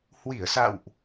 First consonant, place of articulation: glottal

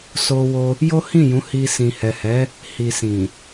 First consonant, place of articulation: alveolar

